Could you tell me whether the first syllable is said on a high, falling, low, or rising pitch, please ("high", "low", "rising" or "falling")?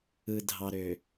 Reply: low